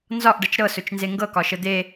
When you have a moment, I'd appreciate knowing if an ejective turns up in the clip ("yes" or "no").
no